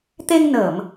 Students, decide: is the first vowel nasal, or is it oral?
oral